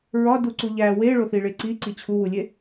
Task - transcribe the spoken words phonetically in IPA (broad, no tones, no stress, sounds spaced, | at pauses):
ɹ ɒ d u ǀ u ʎ æ w e ɭ o θ i ɭ e ǀ i ǀ i t͡ɕʰ u w u lʲ e